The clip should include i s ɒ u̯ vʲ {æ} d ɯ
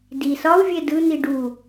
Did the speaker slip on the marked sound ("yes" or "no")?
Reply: yes